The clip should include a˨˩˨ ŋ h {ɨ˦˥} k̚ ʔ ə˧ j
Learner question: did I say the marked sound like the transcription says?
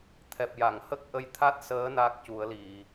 no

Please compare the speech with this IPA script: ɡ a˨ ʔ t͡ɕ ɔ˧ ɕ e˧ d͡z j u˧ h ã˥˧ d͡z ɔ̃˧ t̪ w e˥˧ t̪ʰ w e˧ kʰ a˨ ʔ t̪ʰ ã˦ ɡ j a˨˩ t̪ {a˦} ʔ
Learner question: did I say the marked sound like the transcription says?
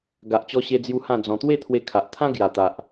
no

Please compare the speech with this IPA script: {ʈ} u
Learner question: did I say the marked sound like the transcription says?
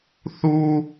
no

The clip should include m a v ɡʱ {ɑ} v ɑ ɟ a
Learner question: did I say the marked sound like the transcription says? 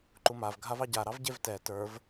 no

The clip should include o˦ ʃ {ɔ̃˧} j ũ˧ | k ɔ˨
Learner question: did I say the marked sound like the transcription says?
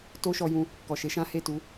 no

